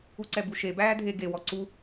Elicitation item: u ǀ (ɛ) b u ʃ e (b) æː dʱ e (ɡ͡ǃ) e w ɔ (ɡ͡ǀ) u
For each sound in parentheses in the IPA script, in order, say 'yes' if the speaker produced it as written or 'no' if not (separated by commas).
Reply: yes, yes, no, no